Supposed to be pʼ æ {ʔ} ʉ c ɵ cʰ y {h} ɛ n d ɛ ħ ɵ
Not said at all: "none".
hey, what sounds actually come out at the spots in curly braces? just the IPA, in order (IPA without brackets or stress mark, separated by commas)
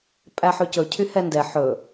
ħ, h